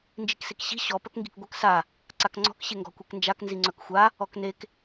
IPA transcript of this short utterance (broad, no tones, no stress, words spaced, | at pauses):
nd͡ʒiksekɕi̤ ɕɔ pœkŋɡi̤kɡʷœk sa | ǀakŋ͡ǀɔ̤k ɕeŋɡɔ̤kʷeknd͡ʒak nziŋ͡ǀœkxʷa | ɔknek